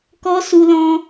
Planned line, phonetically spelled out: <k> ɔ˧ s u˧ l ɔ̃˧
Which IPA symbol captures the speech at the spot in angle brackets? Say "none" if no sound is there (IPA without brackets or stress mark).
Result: k